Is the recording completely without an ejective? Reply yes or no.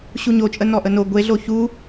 no